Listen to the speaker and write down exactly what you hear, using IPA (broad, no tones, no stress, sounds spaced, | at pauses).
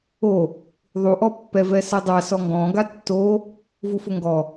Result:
o | ðˤ u ʔ ɔ pː ɛ v ɛ s ɛ dˤ a s ɔ ŋ ɡ ɔ̃ ɡ a tː o | v u f ʊ ŋ ɡ ɔ